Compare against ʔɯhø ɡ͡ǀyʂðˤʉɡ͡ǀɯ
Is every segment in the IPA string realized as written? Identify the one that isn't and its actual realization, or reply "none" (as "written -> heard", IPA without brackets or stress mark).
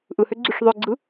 ʉ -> ø